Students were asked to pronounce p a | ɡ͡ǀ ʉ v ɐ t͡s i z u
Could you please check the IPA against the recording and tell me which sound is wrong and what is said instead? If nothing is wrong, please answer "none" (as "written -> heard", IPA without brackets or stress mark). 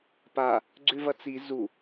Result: none